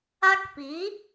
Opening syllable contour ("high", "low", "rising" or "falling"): high